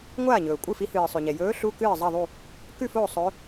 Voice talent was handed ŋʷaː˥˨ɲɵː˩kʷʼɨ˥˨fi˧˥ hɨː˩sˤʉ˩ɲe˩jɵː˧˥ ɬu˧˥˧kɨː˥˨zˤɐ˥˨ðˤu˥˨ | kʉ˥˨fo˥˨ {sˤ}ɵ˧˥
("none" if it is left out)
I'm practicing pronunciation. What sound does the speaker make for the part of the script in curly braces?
sˤ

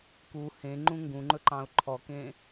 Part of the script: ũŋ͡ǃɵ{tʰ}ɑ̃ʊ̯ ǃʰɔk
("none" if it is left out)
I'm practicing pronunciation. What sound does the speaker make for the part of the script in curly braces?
ǃ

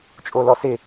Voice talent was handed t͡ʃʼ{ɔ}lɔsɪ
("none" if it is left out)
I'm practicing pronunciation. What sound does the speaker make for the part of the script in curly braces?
o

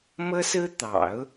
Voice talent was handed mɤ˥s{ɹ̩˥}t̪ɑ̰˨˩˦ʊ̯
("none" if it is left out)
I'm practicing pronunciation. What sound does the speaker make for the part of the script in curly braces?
ɹ̩˥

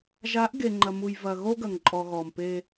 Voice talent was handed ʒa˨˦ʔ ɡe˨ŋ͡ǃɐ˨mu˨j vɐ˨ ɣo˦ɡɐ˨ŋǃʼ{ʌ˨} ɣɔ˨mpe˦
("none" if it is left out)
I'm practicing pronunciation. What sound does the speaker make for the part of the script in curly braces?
ɔ˨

